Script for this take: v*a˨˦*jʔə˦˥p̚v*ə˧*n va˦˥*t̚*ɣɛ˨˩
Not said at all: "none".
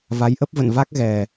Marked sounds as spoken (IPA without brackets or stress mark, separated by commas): a˨˦, ə̰˧˨, k̚